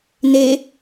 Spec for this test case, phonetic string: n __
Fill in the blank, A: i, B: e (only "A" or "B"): B